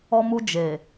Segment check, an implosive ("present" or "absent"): absent